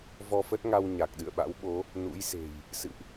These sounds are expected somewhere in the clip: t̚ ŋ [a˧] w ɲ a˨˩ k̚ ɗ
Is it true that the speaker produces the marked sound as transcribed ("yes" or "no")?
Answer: yes